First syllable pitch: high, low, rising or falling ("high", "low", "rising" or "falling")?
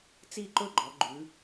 falling